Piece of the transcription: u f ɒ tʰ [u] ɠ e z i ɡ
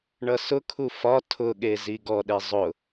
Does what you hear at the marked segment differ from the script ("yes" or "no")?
yes